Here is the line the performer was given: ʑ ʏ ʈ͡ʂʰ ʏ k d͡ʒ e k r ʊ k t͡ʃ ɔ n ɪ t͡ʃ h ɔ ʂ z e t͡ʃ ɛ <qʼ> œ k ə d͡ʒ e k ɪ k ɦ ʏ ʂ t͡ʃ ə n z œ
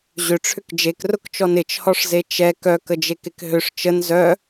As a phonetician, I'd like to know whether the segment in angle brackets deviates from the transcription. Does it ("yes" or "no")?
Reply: yes